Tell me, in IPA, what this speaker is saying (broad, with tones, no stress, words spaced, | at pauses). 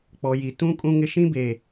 k͡pɔ˨ji˨tũ˦ kʼũ˦ŋɪ˦ʃĩ˦be˨